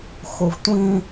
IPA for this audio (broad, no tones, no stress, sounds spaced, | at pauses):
x o v tʷ ĩ